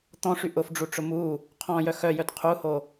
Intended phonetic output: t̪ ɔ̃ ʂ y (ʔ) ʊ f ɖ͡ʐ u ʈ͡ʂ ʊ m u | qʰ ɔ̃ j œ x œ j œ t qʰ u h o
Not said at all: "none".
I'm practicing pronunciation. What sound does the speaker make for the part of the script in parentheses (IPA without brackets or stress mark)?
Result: ʔ